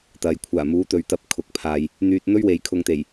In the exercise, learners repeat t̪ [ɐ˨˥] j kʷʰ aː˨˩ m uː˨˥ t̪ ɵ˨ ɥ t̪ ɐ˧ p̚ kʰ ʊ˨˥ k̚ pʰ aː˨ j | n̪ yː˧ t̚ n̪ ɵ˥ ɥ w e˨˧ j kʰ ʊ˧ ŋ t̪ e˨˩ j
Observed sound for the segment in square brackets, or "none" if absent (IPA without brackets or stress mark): ɐ˨